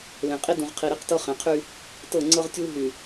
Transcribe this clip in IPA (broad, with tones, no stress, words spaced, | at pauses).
lẽ˨qʼi˦ dũ˨ʁ qʰi˨ɾi˦qtɤ˦ χẽ˨qʰy˦ | tɤ˦˨ŋ͡ǀɤ˦ʁtʲuː˦ ɦy˨